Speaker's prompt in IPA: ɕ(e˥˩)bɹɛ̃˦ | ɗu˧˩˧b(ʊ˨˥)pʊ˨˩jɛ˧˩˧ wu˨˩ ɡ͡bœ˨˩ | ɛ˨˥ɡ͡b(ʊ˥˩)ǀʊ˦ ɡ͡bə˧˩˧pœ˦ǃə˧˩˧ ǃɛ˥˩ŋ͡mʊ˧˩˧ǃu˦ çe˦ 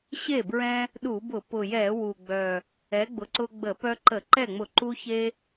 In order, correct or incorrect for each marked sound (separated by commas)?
correct, incorrect, incorrect